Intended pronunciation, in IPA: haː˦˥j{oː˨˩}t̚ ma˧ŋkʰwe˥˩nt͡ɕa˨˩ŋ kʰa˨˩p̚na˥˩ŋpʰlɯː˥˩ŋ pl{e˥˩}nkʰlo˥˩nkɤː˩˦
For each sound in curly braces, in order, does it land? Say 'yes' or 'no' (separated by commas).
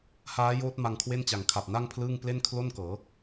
no, yes